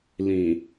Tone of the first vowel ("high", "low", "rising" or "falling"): low